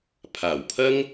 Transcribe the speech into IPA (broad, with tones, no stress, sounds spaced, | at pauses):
pʰ aː˨˩ w pʰ ɐ˥ ŋ